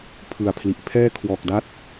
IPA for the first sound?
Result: pʰ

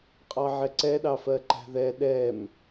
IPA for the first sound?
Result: qʼ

